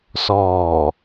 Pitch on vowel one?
low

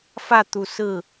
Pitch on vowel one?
falling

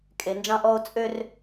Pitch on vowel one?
low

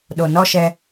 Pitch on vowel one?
low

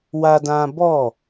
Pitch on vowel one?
high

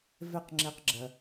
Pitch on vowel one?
falling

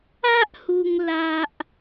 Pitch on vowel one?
high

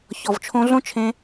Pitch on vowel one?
low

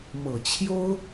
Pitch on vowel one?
low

